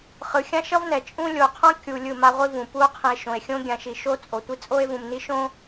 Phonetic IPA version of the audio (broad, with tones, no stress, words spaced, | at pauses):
χɯ˨xʲã˦ʃʌ˦vnɛ˨ t͡ʃʼũ˦ lʲo˨qʰõ˦ kʲu˨ lʲɯ˦˨ma˦ʁʷi˦vũ˨ pu˦o̯qʰĩ˨e̯ ʃõ˨e̯xʲõ˦ɡʲã˨ʃi˨ ʃo˦ t͡sʼo˨tʷi˦ t͡sʼo˦e̯vũ˨mni˦ ʃõ˦